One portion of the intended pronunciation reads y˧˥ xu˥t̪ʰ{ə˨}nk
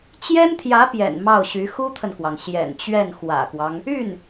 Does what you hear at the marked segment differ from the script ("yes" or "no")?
no